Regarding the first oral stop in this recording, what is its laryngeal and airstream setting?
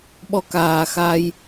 implosive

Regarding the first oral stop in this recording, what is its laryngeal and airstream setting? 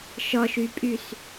ejective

